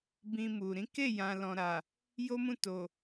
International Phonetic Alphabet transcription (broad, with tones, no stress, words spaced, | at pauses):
bĩ˧mu˨ ɾĩ˨˦ ke˦˨jã˨ lɔ̃˨ɾa˨ | jo˦mũ˦˨ to˨